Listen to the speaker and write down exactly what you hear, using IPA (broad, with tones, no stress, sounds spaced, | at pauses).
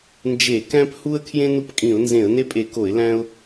n d͡ʒ e˧˩˧ k æ̃˦ p h u˦ ə̯ kʰ j ẽ˦ n u˦ p kʼ ĩ˧˩˧ ʊ̯ n z ẽ˧˩˧ ə̯ n e˦ pʼ e˧˩˧ k o˧˩˧ ɪ̯ l æ̃˦ ʊ̯